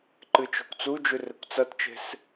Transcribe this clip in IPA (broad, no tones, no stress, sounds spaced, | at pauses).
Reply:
ǃ ɨ t͡ʃ o̤ kʷ t͡s u d͡ʒ ʉ r e kʷ t͡s ɐ t t͡ʃ e̤ s